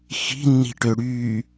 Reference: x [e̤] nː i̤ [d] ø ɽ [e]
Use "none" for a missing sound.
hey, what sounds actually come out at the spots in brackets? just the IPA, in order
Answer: i̤, ʈ, y

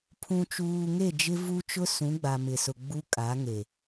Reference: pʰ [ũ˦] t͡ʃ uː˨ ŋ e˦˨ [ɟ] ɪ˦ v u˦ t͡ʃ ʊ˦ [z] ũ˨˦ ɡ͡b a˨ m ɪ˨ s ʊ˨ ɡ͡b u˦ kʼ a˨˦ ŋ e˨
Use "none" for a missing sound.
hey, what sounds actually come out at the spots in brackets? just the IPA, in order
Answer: ũ˨, d͡ʒ, s

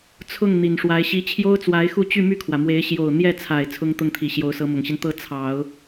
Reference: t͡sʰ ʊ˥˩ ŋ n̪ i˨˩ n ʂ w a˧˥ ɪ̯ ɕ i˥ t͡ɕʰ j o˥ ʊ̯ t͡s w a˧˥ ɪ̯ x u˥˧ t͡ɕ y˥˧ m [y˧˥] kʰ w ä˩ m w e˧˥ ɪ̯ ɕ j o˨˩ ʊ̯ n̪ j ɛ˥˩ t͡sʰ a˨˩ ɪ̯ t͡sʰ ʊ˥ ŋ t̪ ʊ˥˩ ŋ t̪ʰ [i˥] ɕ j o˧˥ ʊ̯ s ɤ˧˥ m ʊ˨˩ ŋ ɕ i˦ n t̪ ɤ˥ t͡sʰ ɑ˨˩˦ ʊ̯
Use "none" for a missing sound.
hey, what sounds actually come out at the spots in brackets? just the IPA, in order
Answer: y˥˩, i˨˩

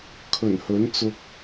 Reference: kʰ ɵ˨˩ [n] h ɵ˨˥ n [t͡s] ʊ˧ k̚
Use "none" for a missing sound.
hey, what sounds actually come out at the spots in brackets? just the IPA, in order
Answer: n, t͡s

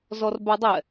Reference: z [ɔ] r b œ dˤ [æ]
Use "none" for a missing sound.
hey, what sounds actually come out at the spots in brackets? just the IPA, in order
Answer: ɔ, ɛ

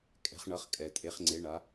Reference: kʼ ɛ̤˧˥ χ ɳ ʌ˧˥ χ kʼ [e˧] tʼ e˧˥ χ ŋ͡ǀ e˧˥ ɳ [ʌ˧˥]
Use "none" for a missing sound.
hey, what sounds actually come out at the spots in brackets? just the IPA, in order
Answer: ɛ˧, a˧˥

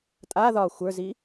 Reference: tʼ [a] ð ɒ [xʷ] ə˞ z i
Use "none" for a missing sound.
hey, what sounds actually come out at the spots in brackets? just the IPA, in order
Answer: a, xʷ

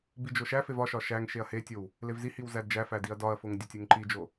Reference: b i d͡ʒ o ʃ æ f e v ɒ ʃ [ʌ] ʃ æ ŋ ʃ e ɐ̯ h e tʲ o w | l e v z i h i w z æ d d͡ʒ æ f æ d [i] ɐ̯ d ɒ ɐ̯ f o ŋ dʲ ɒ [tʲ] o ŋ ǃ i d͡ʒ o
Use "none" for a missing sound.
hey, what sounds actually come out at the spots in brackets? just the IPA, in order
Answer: ɒ, i, tʲ

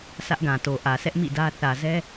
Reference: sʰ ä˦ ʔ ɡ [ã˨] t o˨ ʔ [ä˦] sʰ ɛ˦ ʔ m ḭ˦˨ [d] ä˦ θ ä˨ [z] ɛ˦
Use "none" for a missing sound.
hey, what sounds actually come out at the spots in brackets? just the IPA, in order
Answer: ã˨, ä˨, d, z

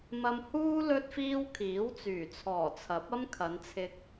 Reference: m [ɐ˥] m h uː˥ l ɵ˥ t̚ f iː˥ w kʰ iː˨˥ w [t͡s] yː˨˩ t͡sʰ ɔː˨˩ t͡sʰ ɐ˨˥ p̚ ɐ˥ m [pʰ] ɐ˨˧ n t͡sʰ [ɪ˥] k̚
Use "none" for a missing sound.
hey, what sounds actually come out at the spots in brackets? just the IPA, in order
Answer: ɐ˧, t͡s, kʰ, ɪ˧

